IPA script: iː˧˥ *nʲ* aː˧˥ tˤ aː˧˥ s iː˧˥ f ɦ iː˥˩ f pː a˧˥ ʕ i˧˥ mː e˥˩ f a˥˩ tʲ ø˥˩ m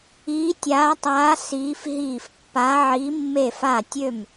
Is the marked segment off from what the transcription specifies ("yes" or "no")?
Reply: yes